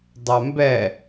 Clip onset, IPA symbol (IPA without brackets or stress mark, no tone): dˤ